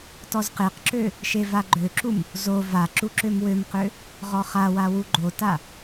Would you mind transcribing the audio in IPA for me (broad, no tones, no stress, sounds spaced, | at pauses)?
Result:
t ɔ z q e q ǁ ø | ʃ e v a ɡ͡ǃ ø ǁ u m | z o v a ǁ u ǁ ø m w ø m q ø | ʁ ɔ χ a w a w u ɡ͡ǃ o t a